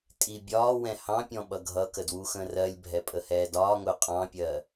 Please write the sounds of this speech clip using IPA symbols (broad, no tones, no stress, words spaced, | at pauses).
tʼi bʲɒːwɛ̃ hɑ̃pʲɔ̃ ɓʌɡʱʌkə dwuxə̃rɜlʲbʱɛ pʼəhɛːdɒːŋʊː qʼɑ̃pʲɜ